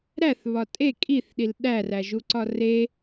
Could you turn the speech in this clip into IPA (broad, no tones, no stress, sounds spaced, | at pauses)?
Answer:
ɾ æ θ β ɒ tʼ e kʼ i θ ɗ i l ɗ æ r æ ʒ u ǀ ɒ r e